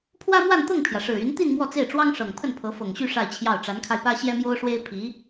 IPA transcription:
pʰ w ä˥ m w a˥˧ n t̪ ɤ˥˩ ŋ pʰ j ä˩ ʂ ɻ̩˨˩ y˧˥ n t̪ i˥˧ n m w ɔ˥˧ t͡s e˥˩ ɪ̯ ʈ͡ʂ w ɑ˥ ŋ ʂ ɤ˨˩ ŋ pʰ ə˥˩ n pʰ ɤ˧˥ f ɤ˨˩ ŋ ɕ y˥˧ ʂ a˥˧ ɪ̯ t͡ɕʰ j ɑ˥˩ ʊ̯ ʈ͡ʂ a˧˥ n kʰ a˧ ɪ̯ p ä˥ ɕ j ɛ˥ m j o˥ ʊ̯ ʂ w e˥ ɪ̯ pʰ i˧˥

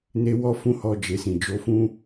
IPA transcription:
n e˦ w ɔ˦ f ũ˦ h ɔ˦ d͡ʒ e˧ s ĩ˨ d͡ʒ o˨˦ f ũ˦

